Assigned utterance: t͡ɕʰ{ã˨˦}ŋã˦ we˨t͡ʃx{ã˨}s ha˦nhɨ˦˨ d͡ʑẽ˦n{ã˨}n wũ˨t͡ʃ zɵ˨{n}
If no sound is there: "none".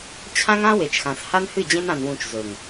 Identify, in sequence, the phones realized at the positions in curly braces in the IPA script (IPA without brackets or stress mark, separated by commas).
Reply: ã˦, ã˨, ã˨, ŋ